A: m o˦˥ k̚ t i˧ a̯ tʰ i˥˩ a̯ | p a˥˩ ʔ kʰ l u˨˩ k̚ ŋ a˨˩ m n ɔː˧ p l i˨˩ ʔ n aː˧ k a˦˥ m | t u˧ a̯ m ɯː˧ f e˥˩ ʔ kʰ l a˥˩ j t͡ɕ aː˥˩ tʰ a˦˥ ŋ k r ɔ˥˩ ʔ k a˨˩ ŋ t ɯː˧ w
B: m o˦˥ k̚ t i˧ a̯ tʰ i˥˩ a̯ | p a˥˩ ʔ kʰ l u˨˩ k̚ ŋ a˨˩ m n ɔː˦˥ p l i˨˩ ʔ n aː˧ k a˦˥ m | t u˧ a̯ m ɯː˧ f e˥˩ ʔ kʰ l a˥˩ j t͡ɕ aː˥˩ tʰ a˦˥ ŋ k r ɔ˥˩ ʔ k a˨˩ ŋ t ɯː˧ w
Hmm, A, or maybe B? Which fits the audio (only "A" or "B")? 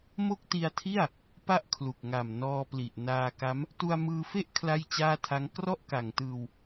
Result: A